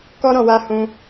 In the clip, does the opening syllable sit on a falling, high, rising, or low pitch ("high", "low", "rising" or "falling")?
high